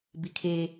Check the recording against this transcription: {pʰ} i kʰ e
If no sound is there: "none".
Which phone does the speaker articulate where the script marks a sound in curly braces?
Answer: b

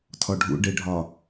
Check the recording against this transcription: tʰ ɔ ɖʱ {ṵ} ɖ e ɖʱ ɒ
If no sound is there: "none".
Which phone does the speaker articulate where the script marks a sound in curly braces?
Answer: ṵ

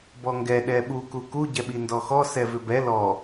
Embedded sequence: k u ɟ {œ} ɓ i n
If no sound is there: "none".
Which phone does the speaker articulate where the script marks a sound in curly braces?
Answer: ɛ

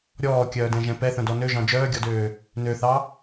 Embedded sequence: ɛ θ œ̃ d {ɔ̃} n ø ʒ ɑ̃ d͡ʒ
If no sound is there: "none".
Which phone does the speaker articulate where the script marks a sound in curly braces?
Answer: ɔ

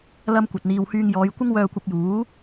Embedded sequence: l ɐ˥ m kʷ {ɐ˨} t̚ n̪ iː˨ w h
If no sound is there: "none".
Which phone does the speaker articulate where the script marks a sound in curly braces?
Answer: ɐ˨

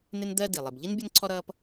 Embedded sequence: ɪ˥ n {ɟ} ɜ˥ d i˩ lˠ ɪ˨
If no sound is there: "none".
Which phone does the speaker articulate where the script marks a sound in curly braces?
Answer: d̪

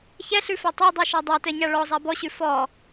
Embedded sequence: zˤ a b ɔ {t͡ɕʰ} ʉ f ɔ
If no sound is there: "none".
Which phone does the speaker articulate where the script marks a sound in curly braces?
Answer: ɕ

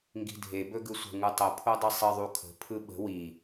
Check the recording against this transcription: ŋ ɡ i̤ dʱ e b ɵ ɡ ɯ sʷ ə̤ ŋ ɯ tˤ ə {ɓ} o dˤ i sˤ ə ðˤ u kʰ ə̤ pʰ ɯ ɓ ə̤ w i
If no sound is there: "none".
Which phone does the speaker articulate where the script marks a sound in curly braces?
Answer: pʰ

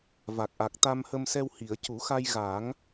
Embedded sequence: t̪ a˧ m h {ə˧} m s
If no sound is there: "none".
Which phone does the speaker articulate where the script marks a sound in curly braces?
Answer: ə˧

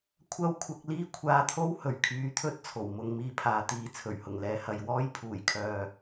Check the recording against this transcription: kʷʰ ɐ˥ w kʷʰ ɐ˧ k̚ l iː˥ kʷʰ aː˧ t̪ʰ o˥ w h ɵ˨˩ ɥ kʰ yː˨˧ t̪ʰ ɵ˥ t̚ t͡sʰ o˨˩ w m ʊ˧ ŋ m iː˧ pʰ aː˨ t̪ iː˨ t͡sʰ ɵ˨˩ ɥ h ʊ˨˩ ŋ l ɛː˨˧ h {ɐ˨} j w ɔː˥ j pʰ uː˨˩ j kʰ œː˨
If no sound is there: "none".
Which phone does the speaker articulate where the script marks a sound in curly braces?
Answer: ɐ˨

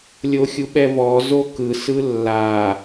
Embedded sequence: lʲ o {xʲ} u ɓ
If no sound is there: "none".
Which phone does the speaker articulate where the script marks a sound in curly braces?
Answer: xʲ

